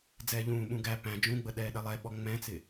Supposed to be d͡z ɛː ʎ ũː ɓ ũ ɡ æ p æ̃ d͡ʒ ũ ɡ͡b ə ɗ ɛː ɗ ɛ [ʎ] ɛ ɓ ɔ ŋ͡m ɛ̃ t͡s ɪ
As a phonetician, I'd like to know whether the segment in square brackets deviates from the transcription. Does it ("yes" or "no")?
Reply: yes